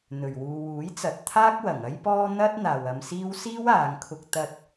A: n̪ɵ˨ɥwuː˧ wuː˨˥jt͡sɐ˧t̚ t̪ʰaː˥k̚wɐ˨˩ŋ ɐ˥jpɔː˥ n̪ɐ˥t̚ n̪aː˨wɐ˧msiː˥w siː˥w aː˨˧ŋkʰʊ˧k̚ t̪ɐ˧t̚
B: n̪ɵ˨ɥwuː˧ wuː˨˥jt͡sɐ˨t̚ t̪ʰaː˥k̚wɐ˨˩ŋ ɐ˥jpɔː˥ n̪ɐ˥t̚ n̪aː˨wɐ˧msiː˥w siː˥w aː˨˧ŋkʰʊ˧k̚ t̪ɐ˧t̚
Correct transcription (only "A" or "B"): B